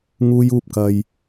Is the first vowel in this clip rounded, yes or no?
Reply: yes